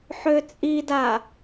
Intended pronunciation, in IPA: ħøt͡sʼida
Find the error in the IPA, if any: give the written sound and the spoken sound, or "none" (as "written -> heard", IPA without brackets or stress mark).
none